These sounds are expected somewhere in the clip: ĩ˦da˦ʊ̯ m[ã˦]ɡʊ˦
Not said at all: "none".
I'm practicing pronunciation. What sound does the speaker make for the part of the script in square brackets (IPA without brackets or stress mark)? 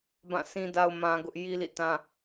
ã˦